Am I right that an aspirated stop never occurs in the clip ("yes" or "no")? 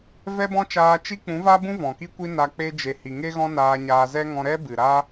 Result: yes